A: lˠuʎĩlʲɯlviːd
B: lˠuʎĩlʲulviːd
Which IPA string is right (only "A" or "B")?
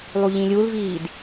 B